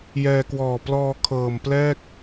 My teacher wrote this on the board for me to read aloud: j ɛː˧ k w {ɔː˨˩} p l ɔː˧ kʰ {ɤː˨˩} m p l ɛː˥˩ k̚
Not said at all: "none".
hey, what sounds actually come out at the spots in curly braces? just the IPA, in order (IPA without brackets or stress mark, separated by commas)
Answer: ɔː˨˩, ɤː˨˩